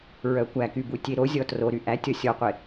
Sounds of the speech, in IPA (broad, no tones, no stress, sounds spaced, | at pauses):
ɹ œ kʷ æ k y b u tʲ e ɾ o zʲ ɔ t r o ɾ y ʔ æ tʲ ɔ sʲ ɔ qʷ e